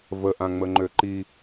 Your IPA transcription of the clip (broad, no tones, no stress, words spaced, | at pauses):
və ʔãŋ͡məŋ͡ǃøǃi